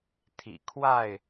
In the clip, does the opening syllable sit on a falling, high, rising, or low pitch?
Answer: low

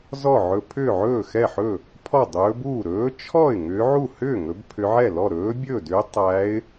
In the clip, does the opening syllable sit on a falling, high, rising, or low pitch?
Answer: falling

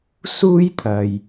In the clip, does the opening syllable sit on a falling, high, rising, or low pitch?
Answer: high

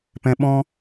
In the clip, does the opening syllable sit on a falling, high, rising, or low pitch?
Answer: low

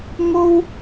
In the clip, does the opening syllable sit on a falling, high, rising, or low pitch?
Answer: high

